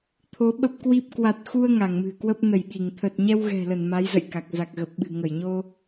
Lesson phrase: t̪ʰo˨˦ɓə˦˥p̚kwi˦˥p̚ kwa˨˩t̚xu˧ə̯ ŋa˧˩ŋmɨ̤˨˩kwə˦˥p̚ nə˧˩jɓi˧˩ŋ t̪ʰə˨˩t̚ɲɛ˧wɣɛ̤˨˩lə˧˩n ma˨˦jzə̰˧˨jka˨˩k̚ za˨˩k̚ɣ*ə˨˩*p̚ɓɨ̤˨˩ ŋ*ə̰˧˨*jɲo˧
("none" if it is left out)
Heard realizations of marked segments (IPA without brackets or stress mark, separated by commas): ə˨˩, ə˧˩